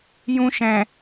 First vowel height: high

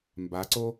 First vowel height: low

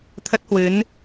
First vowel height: mid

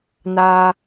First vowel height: low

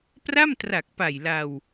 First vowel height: low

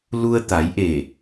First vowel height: high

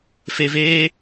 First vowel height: mid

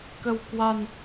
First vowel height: mid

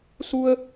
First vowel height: high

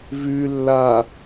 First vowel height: high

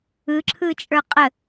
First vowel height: high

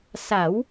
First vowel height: low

